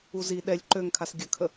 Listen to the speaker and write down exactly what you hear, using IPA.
u z i ɗ ɛ lʲ ǃ ø ŋ kʰ a s ɡʲ ə kʰ ə

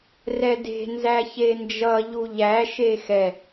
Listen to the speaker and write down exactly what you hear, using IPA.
r ɛ d e̤ n z æ ç e n d͡ʒ ʌ ʎ u ʎ æ ʃ e x ɛ

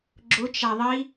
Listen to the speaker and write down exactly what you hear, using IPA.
ɡ͡ǁ ʊ t͡ʃ a ðˤ i

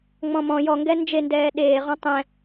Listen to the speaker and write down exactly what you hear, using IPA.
ŋ͡m ɔ̃ m ɔ̃ j ɔ ŋ ɡ ɛ n d͡ʒ e n d ɛː ɗ eː ʁ ɔ̃ tˤ ɛ̃

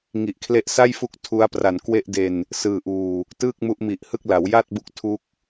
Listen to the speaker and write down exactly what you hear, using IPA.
ŋ i˨˩ ʔ kʰ l e˦˥ ʔ s a˥˩ j f u˦˥ k̚ tʰ u˦˥ a̯ p r a˨˩ n k w e˥˩ ʔ d e˧ n | s ɯː˨˩ ʔ uː˨˩ | t ɯː˥˩ k̚ m u˦˥ ʔ m i˨˩ ʔ h ɯ˥˩ k̚ l a˩˦ w j a˥˩ t̚ b u˦˥ k̚ tʰ u˦˥ k̚

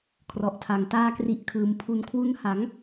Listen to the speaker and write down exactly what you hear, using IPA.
kʰ r ɔ˨˩ ʔ tʰ a˨˩ ŋ t aː˧ k r i˨˩ ʔ kʰ ɯː˩˦ m pʰ u˧ n kʰ w u˦˥ n h a˩˦ ŋ

